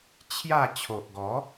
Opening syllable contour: falling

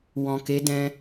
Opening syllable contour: low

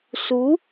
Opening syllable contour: rising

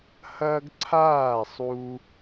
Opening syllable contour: high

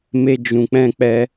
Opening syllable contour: high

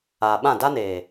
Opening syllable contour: low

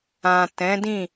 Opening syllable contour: low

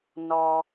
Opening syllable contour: low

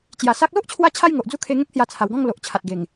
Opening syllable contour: low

